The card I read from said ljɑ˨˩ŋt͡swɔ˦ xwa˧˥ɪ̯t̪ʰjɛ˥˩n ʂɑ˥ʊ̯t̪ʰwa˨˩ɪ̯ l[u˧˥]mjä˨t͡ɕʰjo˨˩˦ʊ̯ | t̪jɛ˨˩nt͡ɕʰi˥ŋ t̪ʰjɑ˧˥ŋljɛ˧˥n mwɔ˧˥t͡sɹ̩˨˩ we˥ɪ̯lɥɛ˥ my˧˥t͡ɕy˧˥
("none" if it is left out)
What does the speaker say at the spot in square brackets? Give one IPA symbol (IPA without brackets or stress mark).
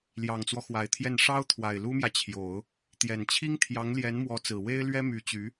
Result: u˥